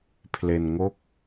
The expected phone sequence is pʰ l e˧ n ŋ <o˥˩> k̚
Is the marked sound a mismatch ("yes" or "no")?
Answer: no